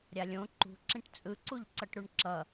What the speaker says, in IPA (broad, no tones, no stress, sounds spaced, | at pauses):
ɾʲ a lʲ õ ǃ ṳ ǁ ĩ ʈ t͡sʼ ɯ ǀ u ʎ ǀ ʌ ʈ ɾ u ɳ ǁ ʌ